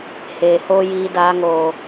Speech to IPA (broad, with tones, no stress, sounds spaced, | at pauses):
h eː˨ h oː˦ j iː˧ d aː˧ ŋ oː˨